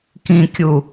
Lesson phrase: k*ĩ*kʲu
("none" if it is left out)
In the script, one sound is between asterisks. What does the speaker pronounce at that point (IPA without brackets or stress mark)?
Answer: ĩ